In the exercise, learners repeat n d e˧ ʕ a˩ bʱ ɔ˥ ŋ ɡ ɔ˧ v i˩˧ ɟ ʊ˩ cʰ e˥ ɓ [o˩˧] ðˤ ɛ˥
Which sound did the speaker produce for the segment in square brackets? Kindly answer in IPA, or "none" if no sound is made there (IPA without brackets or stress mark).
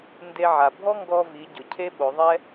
o˩˧